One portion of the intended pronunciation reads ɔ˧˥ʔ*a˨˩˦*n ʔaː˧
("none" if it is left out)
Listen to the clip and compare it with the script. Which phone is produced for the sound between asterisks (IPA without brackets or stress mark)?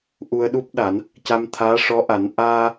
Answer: a˨˩˦